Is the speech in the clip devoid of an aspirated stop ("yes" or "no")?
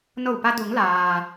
yes